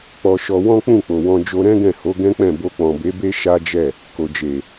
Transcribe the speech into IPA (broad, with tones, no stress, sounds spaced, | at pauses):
k͡p ɔ˧ ʃ ɔ˧ w ɔ̃˦ k͡p ũ˦˨ k͡p o˨ w ɔ̃˧ d͡ʒ o˧ ɾ ɛ̃˦ ɡ ɛ̃˦˨ h o˨˦ ɡ ɛ̃˦ k͡p ɛ̃˦˨ b o˧ k͡p ɔ̃˨ b e˨˦ b e˦ ʃ a˦ d͡ʒ ɛ˦˨ | k o˨ d͡ʒ e˨